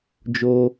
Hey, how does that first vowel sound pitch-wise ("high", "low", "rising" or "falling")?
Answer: high